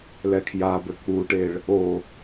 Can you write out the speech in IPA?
lɛkʰjabɘ k͡puʈeɭ | o

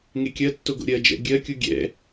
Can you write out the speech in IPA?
ŋekʲɜtːoɡo̰ ɾʲɜd͡ʒɛ̰ ɡʲɜkʲu ɡʲɛ̰

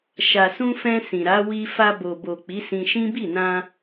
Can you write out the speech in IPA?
ʃa˨sũ˧fɛ̃˧ sĩ˨ɾa˨˦wi˧ fa˧bo˨bo˨ k͡pi˨˦sĩ˧ʃĩ˦ bi˦˨nã˧

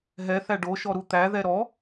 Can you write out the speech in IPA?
ɦɛ θæɖoʃɔ ɾut̪æðɛ ɾɔ

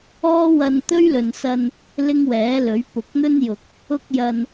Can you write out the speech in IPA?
ɔː˥wɐ˧n t̪ɵ˥ɥlɵ˨nsɐ˧n | lɪ˥ŋwɛː˨˥lɵ˨˥ɥ pʊ˨k̚n̪ɵ˥njʊ˨k̚ | ʊ˥k̚jɐ˧n

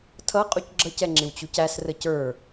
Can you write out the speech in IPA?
tʰʌ qʼucɡ͡ǁʌcɛ ŋ͡ǁɪwt͡ɕucæsrə cə˞

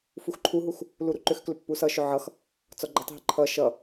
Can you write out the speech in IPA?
fuxǃʰuɦux | luɾuǃʏxklʏ pːusʌʃʏ ʕʌx | t͡sɔɡ͡ǃətˤɦə ǃʰʌ ʃʌ

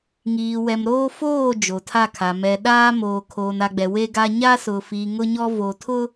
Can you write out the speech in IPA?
ŋiː˨wɛ˨mɾoː˦ foː˦˨ d͡ʒo˨tʰa˦˨kʰa˨ mɛ˨ ɗaː˦ moː˨kʰoː˨na˨ɡ͡bɛ˨ we˦ɡa˦ ɲa˦sʊ˨fiː˨ ŋʊ˦ɲɔ˦ vo˨tʰʊ˦

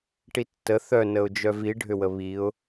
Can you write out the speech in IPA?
ʈitːə θœnəʊ̯d͡ʒœv iɖʱʏwə βiʊ̯

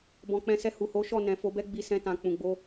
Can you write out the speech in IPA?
bɔ̃˨k͡pɛ̃˨˦sɛ˧ hu˨ho˨˦ʃɔ˦˨ nɛ̃˨fo˨˦bɛ˦ɡ͡bi˧ sɛ̃˧tã˨k͡pũ˨ɡ͡bo˧

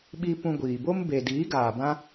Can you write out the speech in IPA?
ɓi˦ pũ˧ɡʷiː˨bo˦m be˨diː˨˦ɡaː˨bã˦

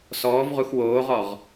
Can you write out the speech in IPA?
sɔːvʁux woːʁɔʁ

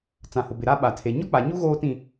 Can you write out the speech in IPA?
t͡sã˨hʊ˨bɪ˨ ɾa˦ɓa˨tʰe˨ ɲɔ˦k͡pa˨ɲu˦ ɣoː˦tĩ˦˨

